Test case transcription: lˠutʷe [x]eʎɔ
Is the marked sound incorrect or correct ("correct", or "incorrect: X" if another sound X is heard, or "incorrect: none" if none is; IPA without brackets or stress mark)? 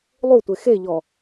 correct